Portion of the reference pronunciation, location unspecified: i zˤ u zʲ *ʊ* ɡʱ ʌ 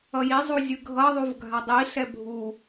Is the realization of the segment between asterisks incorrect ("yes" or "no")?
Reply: yes